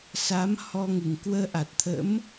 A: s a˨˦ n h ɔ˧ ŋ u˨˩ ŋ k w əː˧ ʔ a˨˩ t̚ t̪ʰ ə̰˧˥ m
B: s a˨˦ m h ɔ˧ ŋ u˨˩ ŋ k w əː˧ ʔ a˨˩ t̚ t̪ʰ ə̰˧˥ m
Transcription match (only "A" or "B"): B